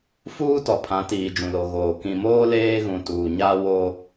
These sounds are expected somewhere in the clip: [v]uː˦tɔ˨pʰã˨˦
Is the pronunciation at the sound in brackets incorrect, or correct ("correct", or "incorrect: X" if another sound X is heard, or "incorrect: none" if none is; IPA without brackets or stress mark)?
incorrect: f